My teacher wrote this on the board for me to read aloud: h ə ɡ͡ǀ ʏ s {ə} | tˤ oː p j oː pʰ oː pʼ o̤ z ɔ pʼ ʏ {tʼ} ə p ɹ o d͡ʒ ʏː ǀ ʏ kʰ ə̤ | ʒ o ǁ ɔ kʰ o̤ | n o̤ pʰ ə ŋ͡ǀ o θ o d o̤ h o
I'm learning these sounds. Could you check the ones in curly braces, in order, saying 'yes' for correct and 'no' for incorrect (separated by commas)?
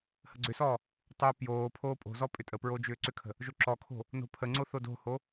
no, yes